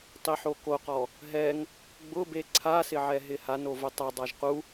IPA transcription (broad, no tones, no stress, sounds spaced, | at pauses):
tˤ i ħ o k o q ɔ | ɦ ɛ ŋ | ɡ͡b ʊ b e ǀʰ a s ɪ ʕ ɛ ɦ ɪ h a n o v ʊ tˤ a dˤ a ʒ q u